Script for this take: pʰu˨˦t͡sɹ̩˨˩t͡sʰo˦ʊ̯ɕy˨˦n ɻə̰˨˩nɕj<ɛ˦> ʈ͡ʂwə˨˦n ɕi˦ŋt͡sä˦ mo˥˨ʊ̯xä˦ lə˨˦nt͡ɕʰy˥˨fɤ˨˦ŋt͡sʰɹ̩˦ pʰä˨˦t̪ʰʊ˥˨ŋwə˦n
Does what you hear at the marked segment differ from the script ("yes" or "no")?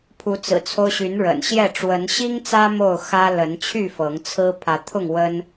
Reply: yes